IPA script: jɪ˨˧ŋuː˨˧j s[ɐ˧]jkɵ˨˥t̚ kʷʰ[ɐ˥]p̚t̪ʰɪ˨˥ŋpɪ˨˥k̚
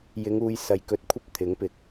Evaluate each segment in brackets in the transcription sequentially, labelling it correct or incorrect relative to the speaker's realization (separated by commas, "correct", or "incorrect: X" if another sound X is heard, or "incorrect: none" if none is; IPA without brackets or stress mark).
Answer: incorrect: ɐ˨, correct